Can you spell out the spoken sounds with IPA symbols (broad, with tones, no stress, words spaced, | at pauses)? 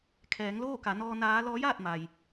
kʰɛː˩˧ŋloː˥˨ka˩˧ nɔː˧naː˧˥ lɔː˧˥jaː˥˨t̚ ma˩j